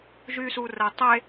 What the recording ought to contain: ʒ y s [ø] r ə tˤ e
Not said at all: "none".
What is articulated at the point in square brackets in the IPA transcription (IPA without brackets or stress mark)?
u